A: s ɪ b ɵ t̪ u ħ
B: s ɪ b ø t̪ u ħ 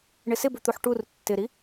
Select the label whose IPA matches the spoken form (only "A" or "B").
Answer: A